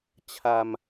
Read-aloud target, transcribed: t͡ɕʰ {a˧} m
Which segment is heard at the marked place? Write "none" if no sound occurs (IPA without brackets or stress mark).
a˧